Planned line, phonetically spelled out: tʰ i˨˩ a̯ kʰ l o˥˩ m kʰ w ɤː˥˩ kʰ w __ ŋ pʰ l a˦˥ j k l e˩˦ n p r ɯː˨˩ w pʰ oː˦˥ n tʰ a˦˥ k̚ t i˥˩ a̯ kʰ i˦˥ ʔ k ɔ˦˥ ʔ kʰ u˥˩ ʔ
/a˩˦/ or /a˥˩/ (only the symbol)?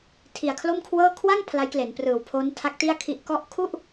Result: a˥˩